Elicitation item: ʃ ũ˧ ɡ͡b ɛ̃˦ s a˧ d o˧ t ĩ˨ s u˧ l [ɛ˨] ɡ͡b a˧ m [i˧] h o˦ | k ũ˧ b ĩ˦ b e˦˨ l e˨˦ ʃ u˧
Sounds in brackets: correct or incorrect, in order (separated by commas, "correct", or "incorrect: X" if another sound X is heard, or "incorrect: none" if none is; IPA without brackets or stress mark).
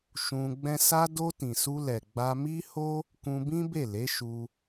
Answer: correct, incorrect: i˦